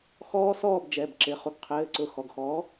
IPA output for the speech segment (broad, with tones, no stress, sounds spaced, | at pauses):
x ɔː˦˥ s ɔː˥˨ b d͡ʒ ɛ˩˧˩ b ǁ ɪ˩˧˩ χ u˩˧ ɡ qʰ ɘː˩˧˩ ǀ ʊ˩˧˩ x ɔ˩˧˩ ɡ x ɔː˨˥